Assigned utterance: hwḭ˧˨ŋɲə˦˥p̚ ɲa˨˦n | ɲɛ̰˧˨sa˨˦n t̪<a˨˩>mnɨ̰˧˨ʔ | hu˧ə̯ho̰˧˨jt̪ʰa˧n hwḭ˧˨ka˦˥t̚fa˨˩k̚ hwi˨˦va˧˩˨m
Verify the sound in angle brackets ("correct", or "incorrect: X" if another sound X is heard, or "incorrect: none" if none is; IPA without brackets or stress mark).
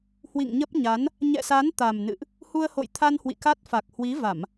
correct